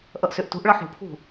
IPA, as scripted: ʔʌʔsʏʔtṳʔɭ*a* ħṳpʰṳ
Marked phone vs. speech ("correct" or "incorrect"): incorrect